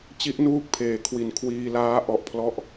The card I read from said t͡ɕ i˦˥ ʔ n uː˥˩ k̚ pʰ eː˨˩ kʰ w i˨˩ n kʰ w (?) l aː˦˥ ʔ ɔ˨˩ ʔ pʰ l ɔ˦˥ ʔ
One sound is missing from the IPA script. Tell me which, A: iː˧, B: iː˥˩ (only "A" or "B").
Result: A